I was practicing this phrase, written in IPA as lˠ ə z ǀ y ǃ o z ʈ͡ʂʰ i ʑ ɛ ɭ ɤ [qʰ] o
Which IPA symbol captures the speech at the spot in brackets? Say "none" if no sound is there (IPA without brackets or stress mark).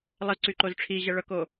k